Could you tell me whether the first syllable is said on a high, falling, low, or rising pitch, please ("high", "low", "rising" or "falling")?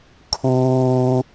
low